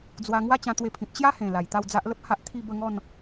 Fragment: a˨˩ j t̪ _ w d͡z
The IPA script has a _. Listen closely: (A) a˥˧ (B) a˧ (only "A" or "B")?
A